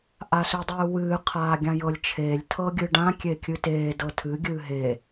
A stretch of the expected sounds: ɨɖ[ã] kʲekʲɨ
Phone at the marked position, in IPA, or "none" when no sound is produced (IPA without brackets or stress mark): ã